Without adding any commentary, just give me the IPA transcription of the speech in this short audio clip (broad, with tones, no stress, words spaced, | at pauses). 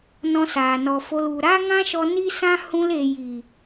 nɔ̃˧saː˨nɔ˨fo˧l u˨ ɾa˦ŋã˦ʃɔ˧ ni˦sã˦ hũ˦l e˨ji˨